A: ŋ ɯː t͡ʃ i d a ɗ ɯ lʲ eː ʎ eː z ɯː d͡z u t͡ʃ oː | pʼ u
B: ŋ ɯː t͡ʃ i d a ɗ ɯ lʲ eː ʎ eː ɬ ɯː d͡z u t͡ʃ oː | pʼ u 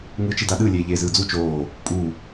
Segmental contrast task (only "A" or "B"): A